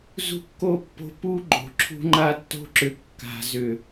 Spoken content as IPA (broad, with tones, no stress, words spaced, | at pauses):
zṳ˦kːo˦pːo̤˦ pu˦ɡ͡ǃo̤˨ ǁʰṳ˦ŋ͡ǃa˦tːo̤˦ǁʏ˨ kːa̤˨zʏ˨